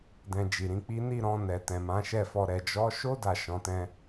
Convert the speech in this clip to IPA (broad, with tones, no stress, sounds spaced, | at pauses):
d ɛ̃˧ d͡ʒ i˨ ɾ ĩ˨˦ k͡p i˦ n i˦˨ ɾ ɔ̃˧ n ɛ˨ t ɛ̃˨ m ã˨˦ ʃ ɛ˦˨ f ɔ˧ ɾ ɛ˨ d͡ʒ ɔ˨˦ ʃ o˦ d a˦˨ ʃ ɔ̃˨˦ t ɛ̃˦